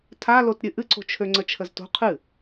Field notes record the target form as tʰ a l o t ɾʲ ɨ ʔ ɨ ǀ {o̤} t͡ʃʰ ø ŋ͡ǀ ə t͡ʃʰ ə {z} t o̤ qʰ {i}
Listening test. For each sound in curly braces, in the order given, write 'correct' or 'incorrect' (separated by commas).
correct, correct, incorrect